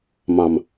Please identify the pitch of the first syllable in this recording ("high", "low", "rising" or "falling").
low